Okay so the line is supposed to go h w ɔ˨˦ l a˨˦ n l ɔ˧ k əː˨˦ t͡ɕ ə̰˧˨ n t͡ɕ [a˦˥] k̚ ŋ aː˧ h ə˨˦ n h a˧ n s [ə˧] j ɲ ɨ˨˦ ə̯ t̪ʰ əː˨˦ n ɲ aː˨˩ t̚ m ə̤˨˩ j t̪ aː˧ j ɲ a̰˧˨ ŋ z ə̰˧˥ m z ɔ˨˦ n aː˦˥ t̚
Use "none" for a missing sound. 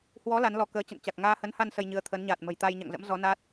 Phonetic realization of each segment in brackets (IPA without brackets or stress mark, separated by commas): a˨˩, ə˧